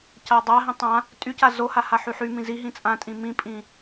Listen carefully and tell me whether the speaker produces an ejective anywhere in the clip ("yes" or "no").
yes